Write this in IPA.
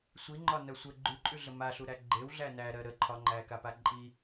sʷ i ŋ͡ǃ ɒ n ɜ sʷ ə ɡ͡ǃ ʉ ǃʼ ʉ ɮ ə m a ɬ u ɾ æ ɡ͡ǃ e w ɮ æ n æ ɾ ɜ ɾ ə ǃʰ ɒ ŋ͡ǃ æ k a p a ǃʼ i

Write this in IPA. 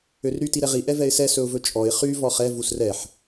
ø r ɾ y t i ɾ ɛ ʁ i ʔ ɛ v ɛ ɪ̯ s ɛ s ɵ ʊ̯ v ɵ t͡ʃʼ ɔ ɪ̯ χ y v ɔ χ ɛ v u s r ɛ ħ

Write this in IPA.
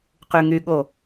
q y ŋ y ɠ o

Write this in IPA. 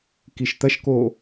k i ʃ t̪ ɐ ʃ k o

